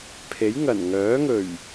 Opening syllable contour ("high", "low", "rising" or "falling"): rising